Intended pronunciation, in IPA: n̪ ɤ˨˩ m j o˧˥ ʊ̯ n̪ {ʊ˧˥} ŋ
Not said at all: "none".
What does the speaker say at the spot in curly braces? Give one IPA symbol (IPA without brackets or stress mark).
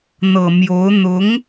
ʊ˧˥